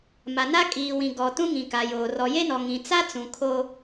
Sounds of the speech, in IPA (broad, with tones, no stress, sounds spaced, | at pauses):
m a˨ n a˦ kʼ iː˨ w ĩ˨ ɡ ɔ˨ t ũ˦ ŋ ĩ˨ k a˨ j oː˨ r ɔ˨ j e˦ n ɔ˨ ŋ ĩ˨ t͡s a˦ t͡s ũ˨ kʰ o˦